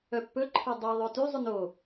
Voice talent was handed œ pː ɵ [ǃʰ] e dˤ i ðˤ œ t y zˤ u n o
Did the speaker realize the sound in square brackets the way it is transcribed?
yes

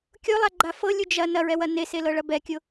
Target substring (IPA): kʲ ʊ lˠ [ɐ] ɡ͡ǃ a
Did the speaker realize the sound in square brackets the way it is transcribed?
no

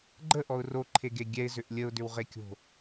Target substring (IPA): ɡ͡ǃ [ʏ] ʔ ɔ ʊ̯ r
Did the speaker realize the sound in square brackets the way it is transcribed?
no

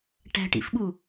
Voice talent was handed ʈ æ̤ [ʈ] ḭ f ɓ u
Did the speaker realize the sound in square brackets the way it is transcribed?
yes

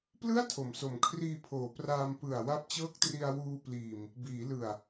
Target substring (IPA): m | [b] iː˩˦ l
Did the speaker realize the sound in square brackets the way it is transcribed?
yes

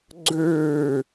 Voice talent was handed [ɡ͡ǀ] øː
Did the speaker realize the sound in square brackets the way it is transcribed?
yes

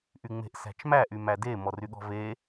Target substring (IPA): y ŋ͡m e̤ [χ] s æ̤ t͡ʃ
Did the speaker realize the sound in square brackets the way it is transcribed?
no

